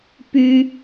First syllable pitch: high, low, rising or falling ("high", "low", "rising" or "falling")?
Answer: high